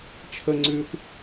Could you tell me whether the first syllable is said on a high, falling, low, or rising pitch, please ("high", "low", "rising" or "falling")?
high